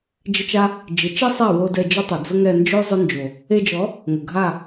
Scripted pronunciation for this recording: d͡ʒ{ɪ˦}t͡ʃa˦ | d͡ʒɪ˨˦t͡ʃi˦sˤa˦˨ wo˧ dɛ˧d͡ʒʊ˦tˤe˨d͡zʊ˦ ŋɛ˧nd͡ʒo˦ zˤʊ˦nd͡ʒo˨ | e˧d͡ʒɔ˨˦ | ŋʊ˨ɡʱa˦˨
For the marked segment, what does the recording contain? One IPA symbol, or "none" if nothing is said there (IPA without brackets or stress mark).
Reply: ɪ˦